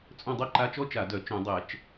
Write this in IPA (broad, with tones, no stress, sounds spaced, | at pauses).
t͡sʼ œ̃˦˨ dˤ œ˥ ǃ a˧˥˧ t͡ʃ ɔ˥ t͡ʃ a˧˩˧ d œ˧˩˧ t͡ʃ œ̃˧˩˧ dˤ ɛ˧˩˧ t͡ʃ